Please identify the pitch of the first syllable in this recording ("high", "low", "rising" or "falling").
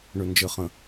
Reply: low